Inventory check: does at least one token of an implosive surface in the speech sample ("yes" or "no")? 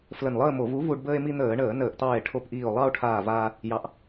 no